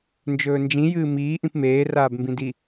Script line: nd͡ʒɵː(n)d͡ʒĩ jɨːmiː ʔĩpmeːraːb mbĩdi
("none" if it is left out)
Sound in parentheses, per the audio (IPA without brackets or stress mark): n